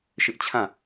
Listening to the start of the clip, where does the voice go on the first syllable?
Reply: high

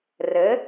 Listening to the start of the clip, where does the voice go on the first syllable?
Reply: rising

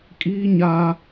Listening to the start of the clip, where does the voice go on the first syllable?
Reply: high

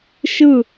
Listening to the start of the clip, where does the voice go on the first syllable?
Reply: falling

